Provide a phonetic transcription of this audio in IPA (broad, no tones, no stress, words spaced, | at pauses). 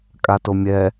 kʼatomʲɛ